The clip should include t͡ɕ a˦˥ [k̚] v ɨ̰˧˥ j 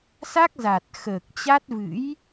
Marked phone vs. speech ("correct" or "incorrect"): incorrect